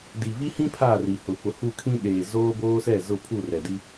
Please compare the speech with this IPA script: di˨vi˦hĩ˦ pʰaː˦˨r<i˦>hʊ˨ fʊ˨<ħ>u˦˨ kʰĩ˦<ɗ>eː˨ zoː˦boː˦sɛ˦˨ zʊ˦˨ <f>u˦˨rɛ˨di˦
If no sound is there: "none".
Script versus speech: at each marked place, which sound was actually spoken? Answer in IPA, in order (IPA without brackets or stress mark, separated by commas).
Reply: i˨, h, ɗ, pʰ